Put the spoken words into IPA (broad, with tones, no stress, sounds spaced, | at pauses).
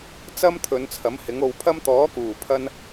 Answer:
t͡s ɐ˥ m t̪ʰ ɵ˨˧ n t͡sʰ ɐ˨˥ m h ɪ˨˥ ŋ o˧ w pʰ ɐ˥ m t̪ ɔː˨˥ k uː˨˩ pʰ ɐ˧ n